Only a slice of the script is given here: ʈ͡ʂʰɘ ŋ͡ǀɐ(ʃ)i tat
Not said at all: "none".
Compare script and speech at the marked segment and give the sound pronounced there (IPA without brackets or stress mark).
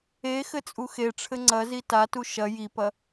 z